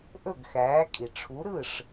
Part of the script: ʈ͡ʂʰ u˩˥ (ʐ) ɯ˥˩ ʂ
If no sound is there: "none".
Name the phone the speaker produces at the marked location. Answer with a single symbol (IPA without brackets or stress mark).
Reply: ɾ